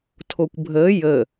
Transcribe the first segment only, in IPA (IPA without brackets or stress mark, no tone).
tʰ